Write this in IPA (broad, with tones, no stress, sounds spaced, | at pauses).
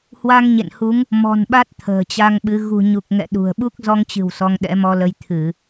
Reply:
h w a˧ ŋ ɲ ḛ˧˨ n h u˨˦ ŋ | m ɔ̤˨˩ n ɓ a˦˥ t̚ t̪ʰ ə̤ː˨˩ t͡ɕ a˧ ŋ ɓ ɨ˨˦ ɣ ṳ˨˩ ɲ u˨˩ k̚ ŋ ɛ̰˧˨ ɗ ṳ˨˩ ə̯ ɓ u˦˥ k̚ z ɔ˧ ŋ t͡ɕ ɨ̤˨˩ w s ɔ˧ ŋ ɗ ɛ̰˧˥ m ɔ˧ l ə˧ j t̪ʰ ɨ˧˩˨